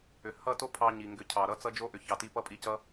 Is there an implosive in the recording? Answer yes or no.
no